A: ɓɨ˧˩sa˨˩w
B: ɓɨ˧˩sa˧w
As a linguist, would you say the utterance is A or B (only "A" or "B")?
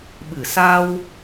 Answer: B